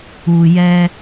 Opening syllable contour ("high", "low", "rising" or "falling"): low